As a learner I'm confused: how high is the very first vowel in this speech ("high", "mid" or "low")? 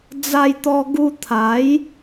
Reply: low